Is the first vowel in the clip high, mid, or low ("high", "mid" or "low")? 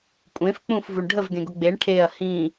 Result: mid